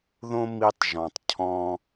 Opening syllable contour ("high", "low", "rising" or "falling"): high